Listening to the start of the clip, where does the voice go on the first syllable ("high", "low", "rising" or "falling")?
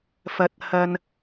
rising